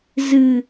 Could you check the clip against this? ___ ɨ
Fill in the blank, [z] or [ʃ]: z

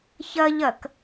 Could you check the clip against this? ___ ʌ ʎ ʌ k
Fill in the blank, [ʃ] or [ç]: ç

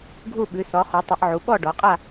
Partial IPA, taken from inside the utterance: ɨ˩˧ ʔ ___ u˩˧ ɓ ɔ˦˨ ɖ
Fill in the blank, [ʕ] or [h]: ʕ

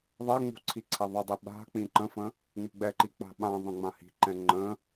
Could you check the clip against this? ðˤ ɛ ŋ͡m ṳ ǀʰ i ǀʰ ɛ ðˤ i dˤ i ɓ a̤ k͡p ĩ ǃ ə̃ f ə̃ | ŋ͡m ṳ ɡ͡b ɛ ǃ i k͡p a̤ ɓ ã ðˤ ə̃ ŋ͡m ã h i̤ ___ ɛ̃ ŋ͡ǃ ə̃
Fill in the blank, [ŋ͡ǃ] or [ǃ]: ǃ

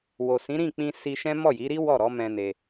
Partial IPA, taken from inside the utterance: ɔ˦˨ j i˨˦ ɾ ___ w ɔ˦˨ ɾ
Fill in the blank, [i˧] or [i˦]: i˦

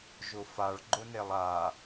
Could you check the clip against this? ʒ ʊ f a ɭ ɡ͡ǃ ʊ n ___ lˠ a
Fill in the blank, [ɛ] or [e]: e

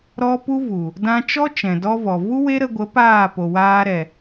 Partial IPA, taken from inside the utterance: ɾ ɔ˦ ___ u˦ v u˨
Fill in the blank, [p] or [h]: p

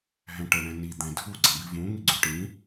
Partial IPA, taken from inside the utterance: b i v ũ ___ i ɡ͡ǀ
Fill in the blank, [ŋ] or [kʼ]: ŋ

